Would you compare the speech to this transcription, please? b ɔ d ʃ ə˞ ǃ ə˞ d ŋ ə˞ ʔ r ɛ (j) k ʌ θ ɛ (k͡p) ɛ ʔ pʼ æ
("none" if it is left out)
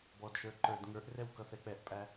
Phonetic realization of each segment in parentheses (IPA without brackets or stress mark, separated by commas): w, k͡p